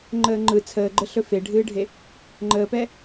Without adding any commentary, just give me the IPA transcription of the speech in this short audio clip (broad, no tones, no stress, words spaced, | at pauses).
ŋ͡ǃəːŋ͡ǃɯ t͡sʰəːɡ͡ǃəɬɵ feɖʱɨːɖʱe | ŋ͡ǃəːpɛ